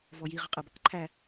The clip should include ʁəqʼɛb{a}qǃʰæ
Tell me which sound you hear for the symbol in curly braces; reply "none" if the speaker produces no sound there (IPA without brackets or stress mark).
ʌ